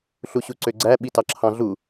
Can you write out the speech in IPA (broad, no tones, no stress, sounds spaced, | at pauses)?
ɬ u ɕ u ǀ ø ɡ͡ǀ æ ɓ i t ɑ ǁʰ ɑ̃ ɮ u